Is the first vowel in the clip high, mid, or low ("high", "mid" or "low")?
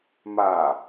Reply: low